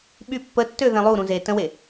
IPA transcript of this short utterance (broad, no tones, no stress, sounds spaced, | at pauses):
ɓ y pː ə tː ø ð ɛ̃ lˠ u ɾ ũ z e t ə̃ w e